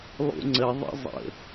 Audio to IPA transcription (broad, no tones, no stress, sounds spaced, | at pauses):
lˠ ṵ ŋ͡ǀ ə ðˤ ə̰ zˤ ə̰